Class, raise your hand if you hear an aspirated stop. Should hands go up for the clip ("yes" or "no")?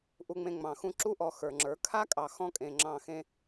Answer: yes